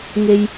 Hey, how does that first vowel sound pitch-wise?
low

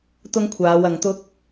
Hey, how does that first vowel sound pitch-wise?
high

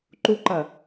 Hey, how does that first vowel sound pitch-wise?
high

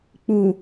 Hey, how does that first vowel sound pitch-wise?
low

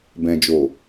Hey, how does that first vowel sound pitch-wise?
low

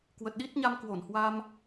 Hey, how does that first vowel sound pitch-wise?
low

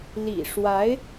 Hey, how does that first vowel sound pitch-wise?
low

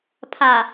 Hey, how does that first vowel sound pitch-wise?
low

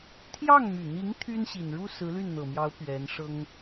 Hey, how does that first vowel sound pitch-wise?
falling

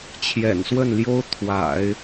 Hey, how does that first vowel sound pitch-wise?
low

